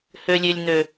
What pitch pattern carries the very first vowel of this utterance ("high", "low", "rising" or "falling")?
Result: high